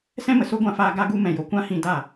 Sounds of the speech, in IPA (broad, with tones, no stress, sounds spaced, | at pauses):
s ɛ̃˦ m ə˨ s o˦ ɡʷ ã˧ f aː˧ ɡ a˧ ɡ u˧ m ɛ̃˨ j o˨ kʷ ã˦ h ĩ˧ d a˦˨